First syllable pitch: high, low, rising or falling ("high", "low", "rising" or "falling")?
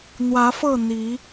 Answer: rising